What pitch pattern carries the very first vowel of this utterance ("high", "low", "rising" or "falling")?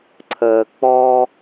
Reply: low